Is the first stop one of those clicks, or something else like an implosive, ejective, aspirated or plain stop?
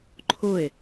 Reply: click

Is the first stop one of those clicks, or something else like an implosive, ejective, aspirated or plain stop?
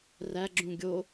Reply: click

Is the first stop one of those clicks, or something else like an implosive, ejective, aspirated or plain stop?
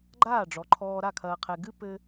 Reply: click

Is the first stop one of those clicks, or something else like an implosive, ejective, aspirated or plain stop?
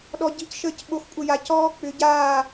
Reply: implosive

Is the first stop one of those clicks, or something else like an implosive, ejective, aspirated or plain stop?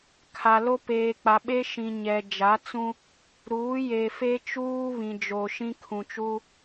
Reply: aspirated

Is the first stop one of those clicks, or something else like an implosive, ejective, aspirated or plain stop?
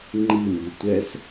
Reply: click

